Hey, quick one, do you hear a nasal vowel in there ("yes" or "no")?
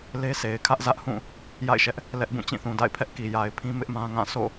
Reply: yes